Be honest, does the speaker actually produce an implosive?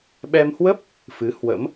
yes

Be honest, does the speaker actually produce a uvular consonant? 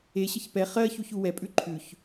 yes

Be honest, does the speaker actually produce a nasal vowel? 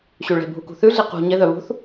no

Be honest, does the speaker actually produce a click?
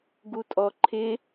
yes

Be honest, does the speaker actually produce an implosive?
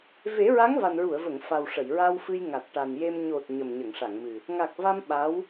yes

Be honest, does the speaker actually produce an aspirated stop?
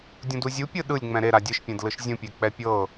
no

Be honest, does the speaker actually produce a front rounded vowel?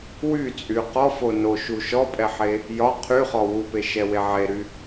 yes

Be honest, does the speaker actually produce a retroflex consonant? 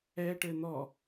yes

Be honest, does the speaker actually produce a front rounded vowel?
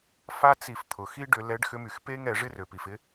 yes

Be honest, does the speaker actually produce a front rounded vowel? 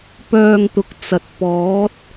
yes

